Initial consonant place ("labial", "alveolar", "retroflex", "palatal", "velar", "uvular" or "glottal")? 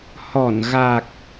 glottal